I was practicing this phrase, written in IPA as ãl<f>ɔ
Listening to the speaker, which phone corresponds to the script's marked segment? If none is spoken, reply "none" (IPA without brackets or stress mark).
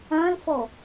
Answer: f